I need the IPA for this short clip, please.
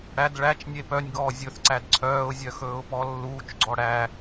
ɽ æ d ɭ æ t͡ʃ nʲ e p œ nʲ ɡ ɔː zʲ ɵ θ ǀ æ d ǀʰ œː ʊ̯ zʲ œ x ɵː ʊ̯ p ɔ lː uː t͡ʃ ɡ͡ǀ ɔ ɽ æ

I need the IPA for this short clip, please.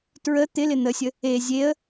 t ɹ ə t̪ ɪ l ɪ n̪ ə sʲ ə | e zʲ e ə̯

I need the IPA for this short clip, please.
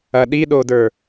ɐ ɗ i ɗ o d ə˞

